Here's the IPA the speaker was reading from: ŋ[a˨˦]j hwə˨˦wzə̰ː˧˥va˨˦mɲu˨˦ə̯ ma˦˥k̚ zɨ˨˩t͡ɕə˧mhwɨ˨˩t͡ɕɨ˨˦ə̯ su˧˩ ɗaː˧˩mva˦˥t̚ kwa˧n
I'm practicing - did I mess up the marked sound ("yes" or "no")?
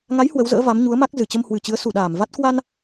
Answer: no